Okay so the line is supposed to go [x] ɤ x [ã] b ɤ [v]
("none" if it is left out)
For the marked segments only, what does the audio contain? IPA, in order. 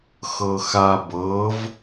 x, a, v

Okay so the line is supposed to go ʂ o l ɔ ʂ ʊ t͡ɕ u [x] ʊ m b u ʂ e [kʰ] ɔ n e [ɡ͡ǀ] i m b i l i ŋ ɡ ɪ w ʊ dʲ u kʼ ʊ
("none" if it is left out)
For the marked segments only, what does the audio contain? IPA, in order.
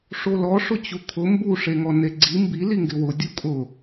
kʰ, ŋ, ɡ͡ǀ

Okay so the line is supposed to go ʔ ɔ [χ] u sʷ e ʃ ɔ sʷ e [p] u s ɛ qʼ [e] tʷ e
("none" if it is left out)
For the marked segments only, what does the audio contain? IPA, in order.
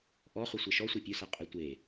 χ, pʲ, e

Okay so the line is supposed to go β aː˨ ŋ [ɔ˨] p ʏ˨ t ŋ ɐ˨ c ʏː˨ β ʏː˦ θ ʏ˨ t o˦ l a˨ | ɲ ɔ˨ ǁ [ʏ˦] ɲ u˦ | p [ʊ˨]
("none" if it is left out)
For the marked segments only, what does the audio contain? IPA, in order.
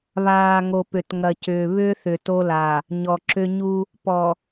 o˨, ʏ˦, ɔ˨

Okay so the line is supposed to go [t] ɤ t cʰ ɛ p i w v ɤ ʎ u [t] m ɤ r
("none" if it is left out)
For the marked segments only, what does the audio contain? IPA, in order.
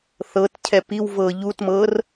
θ, t

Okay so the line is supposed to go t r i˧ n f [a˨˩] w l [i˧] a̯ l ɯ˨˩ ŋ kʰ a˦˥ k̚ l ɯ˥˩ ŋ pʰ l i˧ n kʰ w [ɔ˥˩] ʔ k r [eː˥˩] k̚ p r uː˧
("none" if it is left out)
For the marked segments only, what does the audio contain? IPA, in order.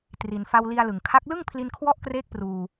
a˧, i˧, ɔ˦˥, eː˥˩

